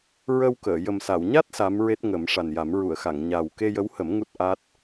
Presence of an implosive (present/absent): absent